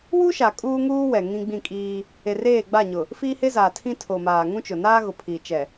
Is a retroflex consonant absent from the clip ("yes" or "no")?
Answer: yes